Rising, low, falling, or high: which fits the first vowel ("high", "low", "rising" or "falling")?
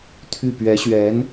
falling